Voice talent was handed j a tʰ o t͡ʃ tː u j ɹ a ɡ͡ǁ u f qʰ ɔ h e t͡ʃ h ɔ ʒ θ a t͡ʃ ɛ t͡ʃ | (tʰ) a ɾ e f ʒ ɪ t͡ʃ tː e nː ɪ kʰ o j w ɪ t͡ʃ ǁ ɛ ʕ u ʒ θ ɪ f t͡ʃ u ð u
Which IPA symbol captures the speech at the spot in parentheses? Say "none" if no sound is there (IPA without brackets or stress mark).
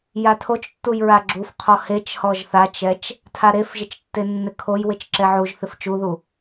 tʰ